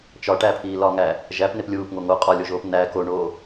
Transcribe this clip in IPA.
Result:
t͡ʃ ɒ ʈ æ pʰ iː l ɒ ŋ æ | ʒ æ p n e p lʲ uː p ŋ o ŋ o qʼ ɒ lʲ o ʒ oː p n æ k o ɳ oː

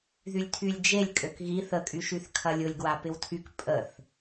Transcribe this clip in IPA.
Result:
ð y lʲ tʰ y lʲ d͡ʒ e lʲ kʼ ø k ɣ i θ ə kʼ y ʃ y θ kʰ ɐ lʲ ʊ lʲ ɡ w a p ɪ w tʰ y k pʼ ə θ

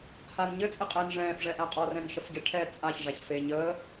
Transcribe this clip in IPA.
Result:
h a n ɲ ɘ t͡sʼ ɘ qʼ ɛː n ʐ ɛ̃ː f ʐ ɛ ʔ æ qʼ ɔ r ɛ̃ n ʃ ə f ɟ ɛ ʈʰ ɛ t͡sʼ a ç ʐ æ ç f e ɲ əː

